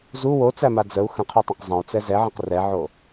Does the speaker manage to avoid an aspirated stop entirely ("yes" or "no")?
no